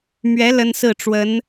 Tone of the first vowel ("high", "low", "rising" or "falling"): rising